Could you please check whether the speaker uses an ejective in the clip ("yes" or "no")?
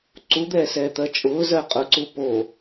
yes